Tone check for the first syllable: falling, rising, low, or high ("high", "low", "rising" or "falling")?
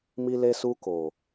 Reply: high